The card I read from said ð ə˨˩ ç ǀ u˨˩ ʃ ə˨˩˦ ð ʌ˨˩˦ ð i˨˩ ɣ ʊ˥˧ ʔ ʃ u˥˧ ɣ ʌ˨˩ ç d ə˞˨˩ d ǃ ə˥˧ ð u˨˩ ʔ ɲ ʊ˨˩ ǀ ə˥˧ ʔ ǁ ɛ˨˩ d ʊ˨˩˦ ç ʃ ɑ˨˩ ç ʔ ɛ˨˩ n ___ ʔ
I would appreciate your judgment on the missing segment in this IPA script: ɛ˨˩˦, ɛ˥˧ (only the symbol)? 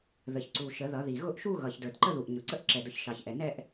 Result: ɛ˥˧